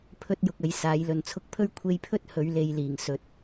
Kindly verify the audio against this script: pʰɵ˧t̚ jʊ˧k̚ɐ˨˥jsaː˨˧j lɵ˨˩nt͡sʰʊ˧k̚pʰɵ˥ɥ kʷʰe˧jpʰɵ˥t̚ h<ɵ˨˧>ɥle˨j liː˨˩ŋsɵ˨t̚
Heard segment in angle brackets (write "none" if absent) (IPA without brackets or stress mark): ɵ˨˧